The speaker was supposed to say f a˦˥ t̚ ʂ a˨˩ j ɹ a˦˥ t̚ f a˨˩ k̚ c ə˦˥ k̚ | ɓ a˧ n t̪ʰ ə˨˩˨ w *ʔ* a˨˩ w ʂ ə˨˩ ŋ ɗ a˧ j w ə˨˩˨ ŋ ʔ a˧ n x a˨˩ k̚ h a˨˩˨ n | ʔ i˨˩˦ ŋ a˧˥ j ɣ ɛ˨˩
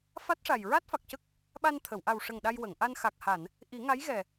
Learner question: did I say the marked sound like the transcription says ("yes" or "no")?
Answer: yes